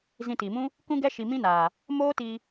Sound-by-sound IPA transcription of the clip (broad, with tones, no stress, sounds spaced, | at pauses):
z ĩ˧ t i˨ m ũ˦ | k ũ˦ ɡ ɛ˦ ʃ i˧ m ĩ˦ n aː˨ | m oː˦ t iː˧